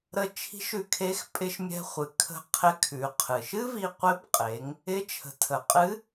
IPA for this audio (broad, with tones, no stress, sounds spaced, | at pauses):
ɾ ə˧ t͡ʃʰ i̤˧˥ ʃ ʉ˧ kʰ e˧˥ x pʼ ɪ˧ ʃ mʲ ɛ̤˧ χʷ ɨ˩ kʰ ə̤˧ qʰ ɪ˧˥ kʰ ʉ˩˧ qʰ ɨ˩ ʃ ɨ˥ v i˧ qʷ ɪ˧˥ b qʼ e˩˧ ŋ | ɪ˧˥ t͡ʃʰ ə̤˩˧ tʰ ə˩ qʼ ɨ˧˥